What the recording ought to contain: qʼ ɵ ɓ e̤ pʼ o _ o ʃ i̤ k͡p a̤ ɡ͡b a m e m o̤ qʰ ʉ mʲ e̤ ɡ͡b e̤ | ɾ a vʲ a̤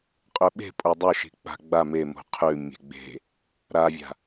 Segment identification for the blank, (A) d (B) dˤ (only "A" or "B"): B